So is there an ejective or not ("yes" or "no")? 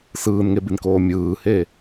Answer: no